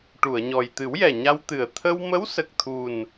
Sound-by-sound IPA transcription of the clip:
ʈ u˨˩˨ ə̯ ɲ ɔ˨˩ j t̪ ɨ˨˩˦ w j ɛ˨˩ ɲ a˧ w t̪ ɨ˨˩ ə̯ t̪ʰ ə˧ w m ə˧˥ w s ə˨˩ k̚ t̪ʰ u˨˩ n

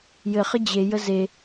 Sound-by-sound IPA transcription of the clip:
j ɘ χ ə d͡ʑ e j ə z e

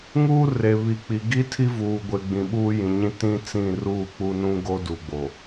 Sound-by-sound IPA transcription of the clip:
ŋ uː˦ r e˨ β i˨ k͡p i˨ ɡ i˦ tʰ i˦ v uː˨ ɡʷ e˨ ɡ͡b ĩ˨ ɓ uː˦ j ĩ˨ ɲ ĩ˦ t ĩ˦ t͡s ĩ˦˨ r uː˦˨ k͡p u˦ n ũ˦ ɡ o˦ d u˨ ɡ͡b o˨

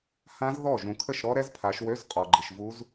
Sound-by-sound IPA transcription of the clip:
h ã˦˥ z ð ɔ˥˩ ʒ ũ˨ kʰ ə˥˩ ʃ ɾ ɔ˦˥ ɾ ɛ˦˥ z pʰ a˨˦ ʃ w ø˧˥˧ z qʼ ɔ˨ ɡ͡ǃ i˨ ʃ v u˦˥ z

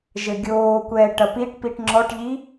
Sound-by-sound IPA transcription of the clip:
ʒ ɘ ɡʲ oː kʷ ɛː ʈ ɐ p i ʈ p i ʈ ŋ͡ǁ ɔ ʈ ʎ i

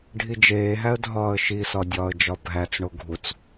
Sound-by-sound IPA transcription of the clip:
ɖʱ i d͡ʒ eː ɦ æ ə̯ dʱ ɒː ə̯ ʃ i s ɒ dʲ ɒː ə̯ d͡ʒ ɒ bʱ æ t͡s ɳ o ɡʱ u t͡s

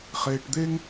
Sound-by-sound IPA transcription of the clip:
χ eː˧ ʈ d̪ e˥ ŋ

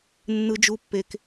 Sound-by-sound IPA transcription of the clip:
nː ɯ˧ d͡ʒ u˧ pː e˧ k

